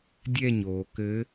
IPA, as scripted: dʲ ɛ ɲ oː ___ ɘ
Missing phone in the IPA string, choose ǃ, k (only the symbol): k